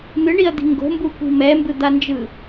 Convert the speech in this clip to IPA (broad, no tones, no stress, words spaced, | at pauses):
n̪ɯɳiɐ̯d̪i̤ ŋɡo̤mbukʷi̤ mɛmbɯd̪and͡ʒɯ